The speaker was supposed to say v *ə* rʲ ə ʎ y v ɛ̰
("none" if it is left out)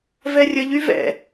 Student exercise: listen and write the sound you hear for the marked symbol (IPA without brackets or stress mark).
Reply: ɛ